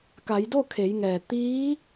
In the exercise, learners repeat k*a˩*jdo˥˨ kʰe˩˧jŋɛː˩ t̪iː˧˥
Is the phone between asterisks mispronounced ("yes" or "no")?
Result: yes